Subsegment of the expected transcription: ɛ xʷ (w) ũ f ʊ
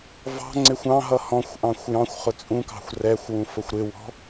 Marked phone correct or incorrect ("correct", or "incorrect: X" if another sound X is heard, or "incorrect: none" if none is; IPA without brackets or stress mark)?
correct